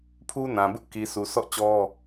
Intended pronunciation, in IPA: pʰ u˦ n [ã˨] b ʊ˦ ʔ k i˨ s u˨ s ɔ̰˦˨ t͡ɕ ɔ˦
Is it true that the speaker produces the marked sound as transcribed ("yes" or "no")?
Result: yes